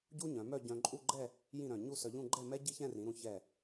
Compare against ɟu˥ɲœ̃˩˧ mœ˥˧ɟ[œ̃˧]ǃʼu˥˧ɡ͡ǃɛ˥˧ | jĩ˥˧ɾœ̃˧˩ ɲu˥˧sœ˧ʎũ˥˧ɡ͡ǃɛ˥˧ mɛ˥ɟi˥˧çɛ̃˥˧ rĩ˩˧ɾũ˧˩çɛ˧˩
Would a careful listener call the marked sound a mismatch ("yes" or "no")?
no